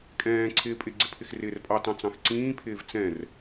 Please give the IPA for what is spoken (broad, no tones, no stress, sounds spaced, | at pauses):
kʼ ɛ̃ː ǀʰ ɪː pʼ ɪ ɡ͡ǀ ɪ pʰ ɪ x r ɪː r pʼ ɑ t ɑ̃ t͡s ɑ̃ x ǀ ĩː pʰ ɪː v t͡s ɛ̃ r